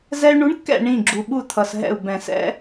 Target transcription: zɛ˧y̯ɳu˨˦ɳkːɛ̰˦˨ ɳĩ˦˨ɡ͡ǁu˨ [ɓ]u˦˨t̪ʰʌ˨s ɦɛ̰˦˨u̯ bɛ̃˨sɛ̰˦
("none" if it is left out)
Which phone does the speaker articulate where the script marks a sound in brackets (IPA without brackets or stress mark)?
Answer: ɓ